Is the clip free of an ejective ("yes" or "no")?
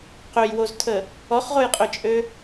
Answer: no